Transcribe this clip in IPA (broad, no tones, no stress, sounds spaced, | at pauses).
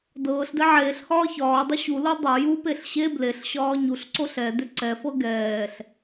d ɤː ɬ d ɛ ʕ eː ɬ h ɒː ç ɒː dˤ u ɕ u l o dˤ o j u p e ɬ ɕ e b l e ɬ ɕ ɒː ɲ u ɬ ǀ o ɬ ɛ d ʏ ǀ ɛ f ɤ ɡ ɛː ɬ